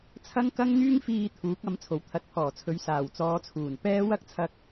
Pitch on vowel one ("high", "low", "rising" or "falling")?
high